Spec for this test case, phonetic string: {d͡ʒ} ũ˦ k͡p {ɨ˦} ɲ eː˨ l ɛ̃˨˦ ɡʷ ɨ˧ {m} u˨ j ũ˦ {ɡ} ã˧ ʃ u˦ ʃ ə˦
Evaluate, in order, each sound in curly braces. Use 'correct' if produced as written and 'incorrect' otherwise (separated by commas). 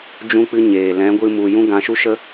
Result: correct, correct, correct, correct